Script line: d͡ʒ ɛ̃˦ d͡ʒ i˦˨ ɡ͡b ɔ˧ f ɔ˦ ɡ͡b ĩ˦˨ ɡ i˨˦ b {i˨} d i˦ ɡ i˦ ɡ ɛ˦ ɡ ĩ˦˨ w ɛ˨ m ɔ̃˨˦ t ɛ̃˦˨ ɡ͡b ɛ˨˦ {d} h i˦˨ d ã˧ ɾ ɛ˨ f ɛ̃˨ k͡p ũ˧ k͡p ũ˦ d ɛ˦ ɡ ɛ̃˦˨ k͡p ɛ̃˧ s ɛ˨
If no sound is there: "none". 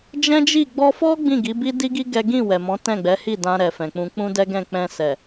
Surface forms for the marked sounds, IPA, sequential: i˦, none

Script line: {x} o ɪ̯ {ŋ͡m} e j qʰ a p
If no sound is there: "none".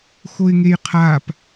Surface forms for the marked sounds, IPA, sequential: x, ŋ

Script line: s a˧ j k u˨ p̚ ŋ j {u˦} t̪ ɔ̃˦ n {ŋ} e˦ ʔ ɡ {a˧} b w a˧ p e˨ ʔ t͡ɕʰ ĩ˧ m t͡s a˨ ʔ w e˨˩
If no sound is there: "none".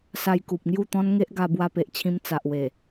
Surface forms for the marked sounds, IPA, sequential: u˥˧, ŋ, a˧

